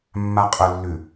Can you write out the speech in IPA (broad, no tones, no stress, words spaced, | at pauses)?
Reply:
mːaqʼʊlːʉ